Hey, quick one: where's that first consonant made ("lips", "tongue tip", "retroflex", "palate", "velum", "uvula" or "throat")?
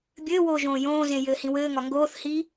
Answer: lips